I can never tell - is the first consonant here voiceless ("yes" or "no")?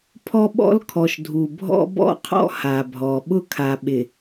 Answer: yes